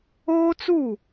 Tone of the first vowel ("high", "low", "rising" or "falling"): high